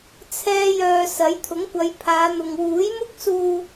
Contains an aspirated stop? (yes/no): yes